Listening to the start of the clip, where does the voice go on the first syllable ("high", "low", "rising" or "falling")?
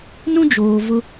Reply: high